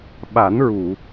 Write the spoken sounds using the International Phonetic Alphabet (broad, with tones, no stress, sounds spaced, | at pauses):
ɓ a˨˩˦ n ɹ u˨˩˨